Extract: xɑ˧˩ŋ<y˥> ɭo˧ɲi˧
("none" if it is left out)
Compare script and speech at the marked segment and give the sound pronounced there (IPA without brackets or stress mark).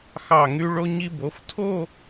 y˧